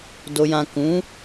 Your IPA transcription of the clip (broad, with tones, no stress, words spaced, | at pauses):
do˨jã˨kũ˨˦